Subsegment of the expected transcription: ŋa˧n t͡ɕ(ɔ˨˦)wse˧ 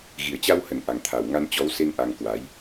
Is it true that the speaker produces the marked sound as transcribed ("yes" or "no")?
yes